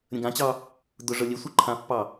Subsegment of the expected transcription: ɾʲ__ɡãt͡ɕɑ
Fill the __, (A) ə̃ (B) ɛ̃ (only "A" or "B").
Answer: A